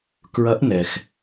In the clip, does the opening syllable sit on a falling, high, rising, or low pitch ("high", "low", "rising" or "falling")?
rising